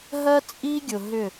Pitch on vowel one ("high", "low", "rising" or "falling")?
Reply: high